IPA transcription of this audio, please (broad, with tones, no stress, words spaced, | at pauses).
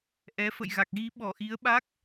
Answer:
ʔɛ˨˦fə̰˧˨jɣa˨˩k̚ ɣi˨˦ɓɔ˧˩ʔi˨˦ə̯ɓa˦˥k̚